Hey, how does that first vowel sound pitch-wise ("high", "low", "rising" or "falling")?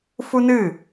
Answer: high